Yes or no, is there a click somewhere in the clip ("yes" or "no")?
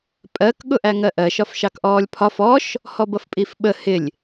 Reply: no